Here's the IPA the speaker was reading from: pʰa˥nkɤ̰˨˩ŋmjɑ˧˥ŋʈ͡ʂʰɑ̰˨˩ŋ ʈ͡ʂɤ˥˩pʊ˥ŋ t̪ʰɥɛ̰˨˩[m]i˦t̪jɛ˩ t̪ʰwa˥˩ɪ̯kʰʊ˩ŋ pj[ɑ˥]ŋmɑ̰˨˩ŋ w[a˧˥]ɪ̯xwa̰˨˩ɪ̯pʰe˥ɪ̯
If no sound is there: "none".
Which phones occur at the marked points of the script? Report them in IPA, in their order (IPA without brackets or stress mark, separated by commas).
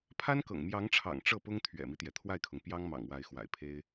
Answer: m, ɑ˥, a˧˥